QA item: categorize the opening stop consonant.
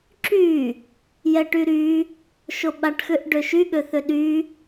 click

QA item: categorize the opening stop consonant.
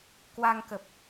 plain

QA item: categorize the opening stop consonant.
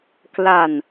plain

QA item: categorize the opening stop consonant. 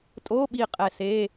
ejective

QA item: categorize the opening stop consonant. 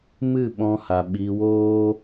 implosive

